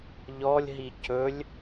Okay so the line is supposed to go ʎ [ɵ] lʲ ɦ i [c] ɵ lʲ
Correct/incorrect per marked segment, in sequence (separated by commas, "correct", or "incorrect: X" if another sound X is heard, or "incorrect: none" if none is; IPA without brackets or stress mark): incorrect: ɔ, correct